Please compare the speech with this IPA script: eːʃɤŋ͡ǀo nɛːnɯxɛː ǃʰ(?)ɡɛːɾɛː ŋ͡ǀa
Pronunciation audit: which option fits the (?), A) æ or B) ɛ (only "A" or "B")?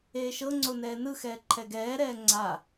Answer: B